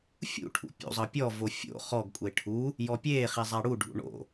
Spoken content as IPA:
fʲ ṵ ʈʰ ṵ pʲ ṵ zˤ ɤ pʲ ɔ v o fʲ o̰ χ ɔ ɡ kʷʼ e ʈʰ u | j ɔ pʲ eː χ i zˤ a ɽ u ɖʱ ṵ ɳ o̰

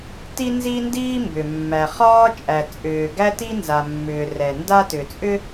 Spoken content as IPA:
t i˥ n z i˥ n d iː˥ m b ʏ˩ mː æ˩ χ ɒː˥ t͡ʃʼ æ˩ t͡sʼ ʏː˩ ɡ æ˥ t i˥ n z a˩ mː ʏː˩ r ɛ˩ n d a˥ t ʏ˩ t͡sʼ ʏ˥

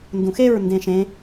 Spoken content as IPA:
n d ũ x e ɹ n d ẽ ʃ ẽ

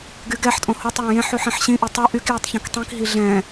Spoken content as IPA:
ɡ y ɡ ɛ ħ tʼ õ h o tˤ j ɛ̃ j ẽ ħ y ħ ĩ ħ ɕ ĩ ʔ i tˤ o ʔ y k j u tˤ ç ɔ̃ k tˤ ĩ k ɦ i ɮ ɛ̃

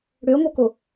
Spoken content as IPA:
ɽ ø o̯ ŋ o k o

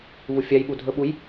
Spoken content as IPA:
v u fʲ a j ɓ u dʱ ɵ ɓ u j

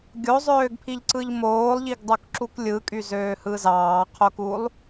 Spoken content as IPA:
ɡʲ o zˤ øː ɡ pʰ i ʎ ǀ ɯ ʎ m oː lˠ ʎ i ɡ dˤ o k ǁ u k lʲ ɯ kʼ y z øː h ɯ z ɑː qʰ o k u lˠ

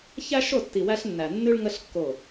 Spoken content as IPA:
ç æ˦ ʃ o˦˨ tː i˨ w æ˧ ɬ nː æ˨ nː ʉ˦ ɭ ŋ ə˦ ɬ kː o˦˨

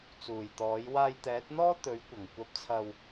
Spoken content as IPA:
t͡s uː˨˩ j t̪ ɔː˨˥ j w aː˧ j t̪ ɛː˨˥ t̚ n̪ ɔː˥ t̪ ɵ˨˥ ɥ kʷ ɐ˨˩ ŋ kʷ ɐ˧ p̚ t͡sʰ ɐ˧ w

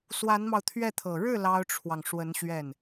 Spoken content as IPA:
s w a˧˥ n m ɑ˧ ʊ̯ t̪ʰ ɥ ɛ˥˩ t̪ʰ ɤ˨˩ ɻ ɻ̩˥˩ l ɑ˥ ʊ̯ ʈ͡ʂʰ w ɑ˨ ŋ ʂ w ə˧˥ n ɕ ɥ ɛ˥˩ n

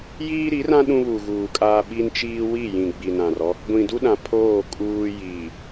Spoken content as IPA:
j iː˦ ɾ i˨˦ r ã˦ ɗ ũ˦ β u˨ ɣ uː˨ kʼ aː˦ ɓ i˦ n t͡ʃ iː˦ w i˦˨ j ĩ˨ ɡ͡b i˨ n ã˨ r ɔ˦ | ɡʷ ĩ˨ d u˦ ɗ ã˨ pʰ oː˦˨ kʼ uː˦ j iː˨

